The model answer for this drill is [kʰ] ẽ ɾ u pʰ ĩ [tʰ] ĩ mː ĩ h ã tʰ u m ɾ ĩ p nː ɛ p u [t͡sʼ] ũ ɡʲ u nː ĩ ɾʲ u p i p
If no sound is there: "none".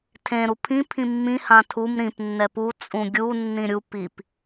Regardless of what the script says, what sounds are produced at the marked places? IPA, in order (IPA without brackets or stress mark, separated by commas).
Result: tʰ, pʰ, t͡sʼ